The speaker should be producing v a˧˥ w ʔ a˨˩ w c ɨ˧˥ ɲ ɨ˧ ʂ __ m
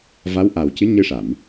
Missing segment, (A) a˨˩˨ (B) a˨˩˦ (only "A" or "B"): A